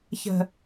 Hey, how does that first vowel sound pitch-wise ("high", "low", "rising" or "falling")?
low